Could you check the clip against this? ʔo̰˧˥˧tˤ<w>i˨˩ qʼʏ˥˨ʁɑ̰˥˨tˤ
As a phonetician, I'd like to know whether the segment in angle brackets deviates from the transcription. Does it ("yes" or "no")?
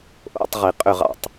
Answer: yes